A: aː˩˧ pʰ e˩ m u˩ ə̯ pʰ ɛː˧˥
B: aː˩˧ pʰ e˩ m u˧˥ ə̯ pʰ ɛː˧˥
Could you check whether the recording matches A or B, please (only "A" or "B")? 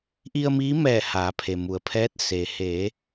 A